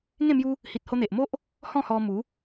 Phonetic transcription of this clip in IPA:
ŋẽ˥˧mju˦ | hi˨t̚ho˧n̪e˨ʔmo˦ʔ | hɔ̃˥˧hɔ˧ mu˨˦

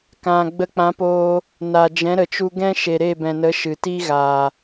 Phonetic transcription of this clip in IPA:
kã˨ ɡ͡bə˧k͡pã˨˦poː˧ | na˨ d͡ʒɛ̃˨˦ɾə˨t͡ʃu˧ɡɛ̃˦ ʃe˨ɾe˦˨bɛ̃˨nə˨˦ ʃɨ˨ti˦ɣaː˨

